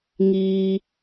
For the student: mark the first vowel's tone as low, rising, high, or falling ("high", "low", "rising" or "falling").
low